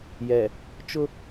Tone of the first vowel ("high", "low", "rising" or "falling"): low